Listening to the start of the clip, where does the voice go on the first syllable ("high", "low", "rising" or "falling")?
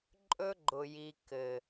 high